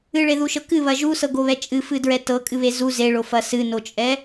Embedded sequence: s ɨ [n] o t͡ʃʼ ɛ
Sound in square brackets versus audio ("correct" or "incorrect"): correct